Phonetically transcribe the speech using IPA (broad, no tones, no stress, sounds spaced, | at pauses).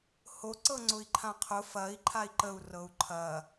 h o ǀ ɤ ŋ͡ǀ ʊ i̯ ǃʰ ã qʰ ʊ f ɐ i̯ ǃʰ a i̯ ǃ ə u̯ r ɤ u̯ ǃʰ ɐ